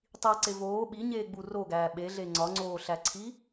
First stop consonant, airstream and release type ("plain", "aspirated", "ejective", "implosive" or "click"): plain